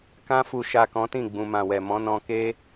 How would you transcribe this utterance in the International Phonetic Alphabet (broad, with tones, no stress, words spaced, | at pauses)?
kã˧fu˨ʃa˨ kɔ̃˨˦tĩ˦˨ɡ͡bũ˨ mã˨wɛ˨mɔ̃˨˦nɔ̃˧ ke˦